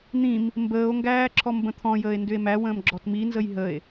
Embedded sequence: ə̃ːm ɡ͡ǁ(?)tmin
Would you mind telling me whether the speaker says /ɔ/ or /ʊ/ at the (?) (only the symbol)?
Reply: ɔ